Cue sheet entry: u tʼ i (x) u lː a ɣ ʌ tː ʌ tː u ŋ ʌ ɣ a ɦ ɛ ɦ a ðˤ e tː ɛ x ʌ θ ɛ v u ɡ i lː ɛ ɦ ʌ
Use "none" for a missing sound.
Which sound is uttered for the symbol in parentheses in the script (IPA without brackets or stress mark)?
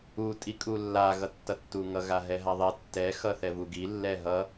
kʼ